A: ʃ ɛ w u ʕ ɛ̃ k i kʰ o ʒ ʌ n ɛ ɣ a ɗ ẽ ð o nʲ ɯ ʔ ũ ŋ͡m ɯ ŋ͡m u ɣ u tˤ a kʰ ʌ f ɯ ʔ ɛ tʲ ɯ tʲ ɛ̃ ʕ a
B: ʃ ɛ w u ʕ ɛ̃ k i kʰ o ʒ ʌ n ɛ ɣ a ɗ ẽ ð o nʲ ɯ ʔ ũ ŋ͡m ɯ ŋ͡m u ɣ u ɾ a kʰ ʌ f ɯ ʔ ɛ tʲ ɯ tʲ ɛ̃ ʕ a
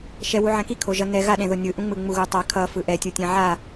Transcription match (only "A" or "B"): A